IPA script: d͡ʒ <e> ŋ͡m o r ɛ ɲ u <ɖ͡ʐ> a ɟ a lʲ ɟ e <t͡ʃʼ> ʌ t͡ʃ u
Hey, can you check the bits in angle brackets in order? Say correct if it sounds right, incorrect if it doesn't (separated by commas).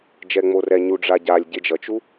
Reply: incorrect, correct, incorrect